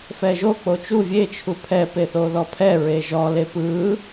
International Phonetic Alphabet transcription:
fɛʒo k͡pot͡ʃu vʲe t͡ʃʰupʰɛ peθoðɔpʰɛ ɹeʒɔ lepɯ

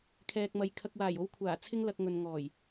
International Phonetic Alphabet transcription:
kʰɛː˨k̚mɐ˨j kʰɐ˨k̚waː˨˩jo˨˧w kʷʰaː˨˩t͡sʰɪ˧ŋlɐ˨k̚ ŋɵ˨n ŋɔː˨˩j

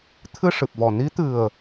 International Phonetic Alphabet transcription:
t̪ʰɨ˧ ʂɨ˨˩p̚vɔ˨˩ ni˧˥t̪ɨ˨˩ə̯

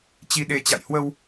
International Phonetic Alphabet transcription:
t͡ɕi˧ɗe˧ t͡ɕa̰˧˨jhwə˧w

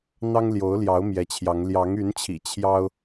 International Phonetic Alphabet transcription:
n̪ɑ˦ŋljo˨˦ʊ̯ljɑ˨˦ʊ̯ mjɛ˨˦t͡ɕʰjɑ˨˦ŋ ljɑ˨˦ŋy˨˦nt͡ɕʰḭ˨˩ t͡ɕʰjɑ˦ʊ̯

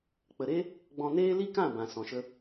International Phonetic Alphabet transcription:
k͡pə˨ɾe˦ | ɡ͡bɔ̃˧neː˦ li˦kã˦˨bã˨ sɔ̃˨ʃə˧

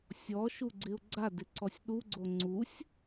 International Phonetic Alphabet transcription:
sʲɔʃuɡ͡ǀɪʊ̯ ɡ͡ǀadɪǀɔsʲ ɗuɡ͡ǀo ŋ͡ǀusʲ

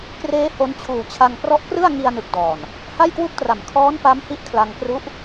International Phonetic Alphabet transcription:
kreː˦˥ ho˦˥n t͡ɕʰuː˨˩t͡ɕʰa˧ŋ prɔ˦˥ʔkrɯ˥˩a̯ŋi˧a̯ nɯ˨˩k̚dɔː˨˩n | ha˥˩jkwu˥˩k̚tra˨˩m kʰɔː˦˥npa˦˥m hi˦˥ʔkʰla˧ŋkru˦˥ʔ

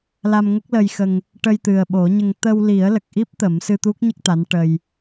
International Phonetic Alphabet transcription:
la˧mŋə˦˥k̚lə˧jxə˧ŋ | ʈə˧jt̪ɨ˨˩ə̯ɓo˨˩˦ɲə˧ŋ t̪ə˧wli˨˩˦ə̯lə˨˩k̚ʔi˦˥p̚ t̪ə˨˩˦msɨ˧t̪u˦˥k̚ɲə˦˥k̚ t̪a˧˥nʈə˧j

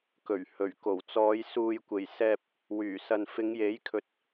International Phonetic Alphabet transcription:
kɵ˨˩ɥ hɵ˨˩ɥko˨˩wt͡sɔː˨˧j suː˨jkʷe˨˩j sɛː˧p̚ | wyː˨˩sɐ˨n fɪ˨˧ŋje˨˥jkʰɵ˨t̚

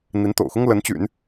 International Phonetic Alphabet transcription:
n̪i˧˥nt̪o̰˨˩ʊ̯xʊ˥ŋ lə˧˥nt͡ɕy̰˨˩˦n

